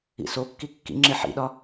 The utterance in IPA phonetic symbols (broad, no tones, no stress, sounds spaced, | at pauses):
ḭ s o kː i kː ḭ ŋ͡ǁ e ħ ḭ ɗ ɒ